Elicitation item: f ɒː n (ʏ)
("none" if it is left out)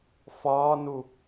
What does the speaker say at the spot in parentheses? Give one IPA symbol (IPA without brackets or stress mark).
u